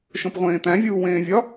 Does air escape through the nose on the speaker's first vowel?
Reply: yes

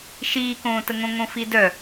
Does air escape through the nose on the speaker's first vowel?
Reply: no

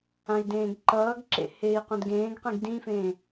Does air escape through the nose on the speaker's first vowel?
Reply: yes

